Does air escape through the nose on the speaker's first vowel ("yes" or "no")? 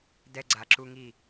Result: no